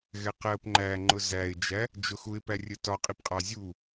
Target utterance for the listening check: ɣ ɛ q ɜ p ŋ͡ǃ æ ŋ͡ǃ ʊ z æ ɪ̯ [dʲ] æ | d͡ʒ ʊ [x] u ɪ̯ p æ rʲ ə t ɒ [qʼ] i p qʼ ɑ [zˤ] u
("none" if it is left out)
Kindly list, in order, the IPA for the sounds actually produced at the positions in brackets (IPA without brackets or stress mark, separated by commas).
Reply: d͡ʒ, x, qʼ, zʲ